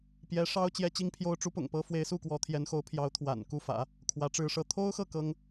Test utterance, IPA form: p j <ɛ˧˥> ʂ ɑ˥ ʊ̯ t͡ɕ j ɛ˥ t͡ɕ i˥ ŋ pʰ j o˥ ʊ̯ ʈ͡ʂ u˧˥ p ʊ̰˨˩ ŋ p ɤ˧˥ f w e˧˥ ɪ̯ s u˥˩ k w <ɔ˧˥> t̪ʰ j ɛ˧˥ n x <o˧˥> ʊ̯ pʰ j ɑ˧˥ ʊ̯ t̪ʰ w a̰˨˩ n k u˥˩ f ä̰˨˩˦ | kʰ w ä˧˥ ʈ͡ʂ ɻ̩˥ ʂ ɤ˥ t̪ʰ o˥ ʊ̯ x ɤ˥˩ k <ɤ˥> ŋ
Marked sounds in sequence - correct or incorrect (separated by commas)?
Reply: correct, correct, correct, correct